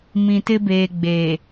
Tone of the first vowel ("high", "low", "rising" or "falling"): low